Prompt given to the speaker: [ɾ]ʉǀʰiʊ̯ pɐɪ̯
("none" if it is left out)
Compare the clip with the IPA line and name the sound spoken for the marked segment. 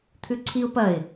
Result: t̪ʰ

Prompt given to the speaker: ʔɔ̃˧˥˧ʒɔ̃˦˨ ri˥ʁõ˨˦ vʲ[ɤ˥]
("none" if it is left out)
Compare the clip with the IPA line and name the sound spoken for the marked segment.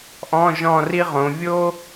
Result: o˥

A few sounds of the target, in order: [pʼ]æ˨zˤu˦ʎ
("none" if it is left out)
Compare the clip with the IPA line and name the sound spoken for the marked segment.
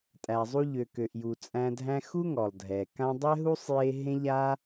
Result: tʼ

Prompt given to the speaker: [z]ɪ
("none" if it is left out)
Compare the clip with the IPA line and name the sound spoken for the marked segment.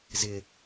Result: z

